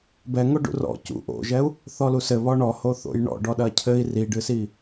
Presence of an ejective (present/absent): absent